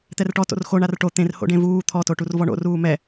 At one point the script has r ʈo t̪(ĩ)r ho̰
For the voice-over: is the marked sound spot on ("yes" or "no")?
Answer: no